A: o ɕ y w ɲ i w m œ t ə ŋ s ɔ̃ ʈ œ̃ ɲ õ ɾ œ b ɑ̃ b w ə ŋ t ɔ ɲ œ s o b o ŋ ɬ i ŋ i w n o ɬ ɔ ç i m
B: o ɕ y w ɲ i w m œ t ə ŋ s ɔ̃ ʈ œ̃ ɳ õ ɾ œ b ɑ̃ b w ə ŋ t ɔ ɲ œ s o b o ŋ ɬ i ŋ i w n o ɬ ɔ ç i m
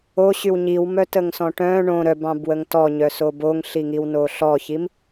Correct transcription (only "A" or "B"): B